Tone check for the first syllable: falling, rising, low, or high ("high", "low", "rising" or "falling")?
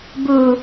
low